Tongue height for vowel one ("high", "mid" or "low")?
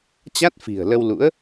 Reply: low